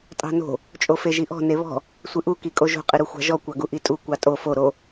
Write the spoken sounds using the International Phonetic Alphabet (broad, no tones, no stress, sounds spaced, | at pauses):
tʼ ɑ̤ n o̤ | t͡ʃʼ o f e ʒ i ʔ ɔ̤ n e β ɔ̤ | sʷ ɨ ʔ u k i kʼ o ʒ o̤ qʼ ɨ ɾ u xʷ ɑ̤ ʒ ɔ kʷ ɑ ɡ u ʔ i tʼ u kʷ ɑ tʼ o f o ɾ o